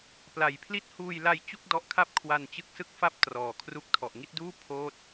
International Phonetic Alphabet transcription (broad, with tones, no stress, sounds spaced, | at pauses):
p l a˨˩ j pʰ l i˦˥ t̚ h uː˧ j l a˧ j t͡ɕ u˥˩ k̚ d ɔ˦˥ ʔ kʰ a˥˩ p̚ kʰ w a˧ n t͡ɕ ɯ˦˥ k̚ s ɯ˥˩ k̚ f a˥˩ p̚ t r ɔː˨˩ kʰ r u˦˥ k̚ tʰ ɔ˨˩ ʔ ŋ i˥˩ t̚ d uː˥˩ pʰ oː˥˩ t̚